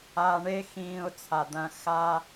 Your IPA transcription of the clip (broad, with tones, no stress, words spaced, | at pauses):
aː˧ɳe˦xĩː˧ʊ̯ t͡sʰa˨d̪ɐ̃˧ xa˧